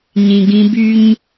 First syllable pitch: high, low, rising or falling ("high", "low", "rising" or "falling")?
low